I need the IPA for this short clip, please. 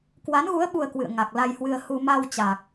k w a˨˦ n ɣ u˨˦ ə̯ ɓ u˧ ə̯ k w ɨ̰˧˨ ə̯ ŋ a˨˩ k̚ l a˧ j h w ɨ˧ ə̯ h u˧ m a˧ w t͡ɕ a˨˩ k̚

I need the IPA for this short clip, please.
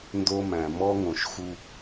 n d o˦ m æ̃˨ m ɔ˦ ŋ õ˨ ʃ x u˦

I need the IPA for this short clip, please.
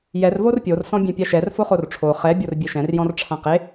j ɛ r v o r pʲ o r s ɔ̃ bʲ ɛ̃ pʲ a ʃ ɛ r f o χ o r ʈ͡ʂʰ o χ ɛ bʲ o r bʲ e ʃ ɛ̃ r j ɔ̃ r ʈ͡ʂʰ ã q e

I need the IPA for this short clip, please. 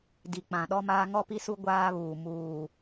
d i˨ k͡p ã˨ ɗ ɔ˦ m aː˦ ŋ ɔ˦ p i˦ s u˦ ɡʷ aː˦ β uː˨ m uː˨

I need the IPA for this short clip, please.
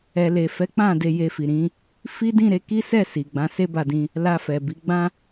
ɛ˨ l e˨ f ɛ˨˦ k͡p ã˦˨ d e˧ j e˧ f i˨ ɾ ĩ˨˦ | f i˦ d ĩ˦˨ ɾ e˨˦ k i˦ s ɛ˦˨ s i˨ ɡ͡b ã˨˦ s e˦ b a˧ d ĩ˧ | l a˧ f ɛ˨ b i˨˦ ɡ͡b ã˦

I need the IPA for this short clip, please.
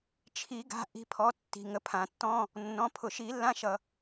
t͡ʃʰ i˨˩˦ ɡ a̤˩˧˩ ʔ i̤˩˧˩ pʰ ɔ˩˧˩ tː i̤˩ ŋ ə˨˩˦ pʰ ã˩ tː ɔ̃˧˥˧ | nː ɔ̃˩˧˩ pʰ ʊ˩ ʃ i˨˩˦ lː ã˧˥˧ ʃ ʌ˩

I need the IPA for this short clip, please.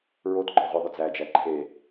ɹ o t ɡ͡ǃ ɔ ʁʷ ɨ ðˤ ʏ d͡z æ d͡ʒ æ ǃʰ e

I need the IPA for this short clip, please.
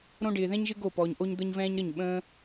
ɾ õ˦ ɖ ɪː˧ ð ɛ̃˦ ɲ ʒ ɪ˦ ɡ o˦˨ p ɔː˧ ɲ ʔ o˦ ɲ d̪ ə˦ ɲ v ɛ̃ː˦ ɲ ɾ ə˦˨ ɲ ɓ ə̃ː˦

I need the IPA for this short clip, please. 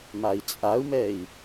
m a i̯ t͡sʼ a u̯ m ɛ i̯

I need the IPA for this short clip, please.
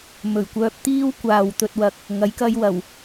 m ɵ˨˩ ɥ kʷ œː˧ p̚ t̪ iː˥ w kʷ aː˨ w t̪ ɵ˨ t̚ w ɐ˨ k̚ | ŋ ɐ˨˥ j k ɐ˧ j w ɐ˨˩ w

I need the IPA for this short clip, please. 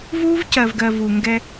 v uː˦ v c ɜ˨ v ɡ ɜ˨ v u˨ ŋ ɡ ɛ˦

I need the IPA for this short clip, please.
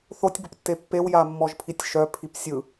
θ o tʲ b ə p tː e pː e w j a mː ɔ ʒ pʰ i tʲ ʃ œ pʰ i p sʲ ɯ

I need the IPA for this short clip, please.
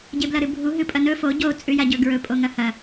ɟ e b l ɐ ɾ ɨ bʱ u ɦ ɨ pʼ ɐ n ɵ f o ɟ o t͡sʼ ʉ j a ɟ ɵ ɡ ɹ ɵ pʼ o ŋ ɐ h ɐ

